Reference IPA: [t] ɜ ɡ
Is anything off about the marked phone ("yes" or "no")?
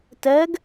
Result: no